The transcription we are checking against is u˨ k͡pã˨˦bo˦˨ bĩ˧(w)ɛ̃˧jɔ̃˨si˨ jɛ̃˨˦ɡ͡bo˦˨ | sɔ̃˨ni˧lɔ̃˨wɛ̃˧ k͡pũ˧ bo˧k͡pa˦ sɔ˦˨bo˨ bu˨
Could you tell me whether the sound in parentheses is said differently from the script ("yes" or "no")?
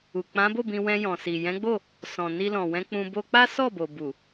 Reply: no